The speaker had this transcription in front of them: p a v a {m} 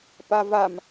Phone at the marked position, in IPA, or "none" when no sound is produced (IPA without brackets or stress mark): m